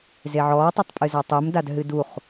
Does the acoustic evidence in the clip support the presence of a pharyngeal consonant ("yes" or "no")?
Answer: yes